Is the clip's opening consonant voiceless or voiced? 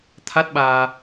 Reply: voiceless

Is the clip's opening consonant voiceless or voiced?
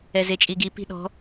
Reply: voiced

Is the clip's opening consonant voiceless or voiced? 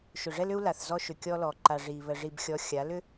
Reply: voiceless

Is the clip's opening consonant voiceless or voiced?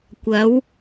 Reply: voiceless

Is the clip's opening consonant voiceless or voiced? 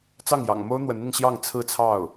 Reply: voiceless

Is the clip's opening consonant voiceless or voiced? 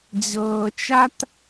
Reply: voiced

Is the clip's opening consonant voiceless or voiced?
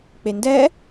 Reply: voiceless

